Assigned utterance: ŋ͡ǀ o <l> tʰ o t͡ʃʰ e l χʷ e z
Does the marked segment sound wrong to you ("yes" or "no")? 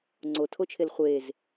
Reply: yes